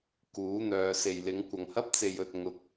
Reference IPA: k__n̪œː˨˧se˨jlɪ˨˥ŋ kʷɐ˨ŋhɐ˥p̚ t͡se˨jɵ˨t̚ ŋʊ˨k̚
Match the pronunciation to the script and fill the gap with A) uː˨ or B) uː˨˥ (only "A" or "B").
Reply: B